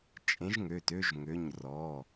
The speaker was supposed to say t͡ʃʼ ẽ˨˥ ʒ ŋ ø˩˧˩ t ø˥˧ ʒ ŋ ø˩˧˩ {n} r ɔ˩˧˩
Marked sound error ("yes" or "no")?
yes